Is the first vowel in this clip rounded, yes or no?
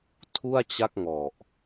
yes